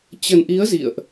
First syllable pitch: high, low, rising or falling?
low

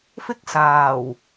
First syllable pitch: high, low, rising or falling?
high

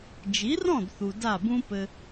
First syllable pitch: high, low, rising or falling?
rising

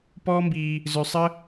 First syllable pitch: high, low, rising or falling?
high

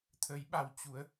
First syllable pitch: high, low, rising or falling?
rising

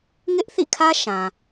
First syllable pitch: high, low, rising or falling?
high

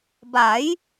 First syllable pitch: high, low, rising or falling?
rising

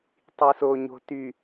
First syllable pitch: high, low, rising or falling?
low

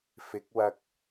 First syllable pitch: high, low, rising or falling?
rising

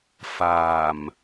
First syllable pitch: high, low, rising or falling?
low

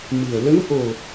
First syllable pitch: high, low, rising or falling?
low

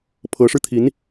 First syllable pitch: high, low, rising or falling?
rising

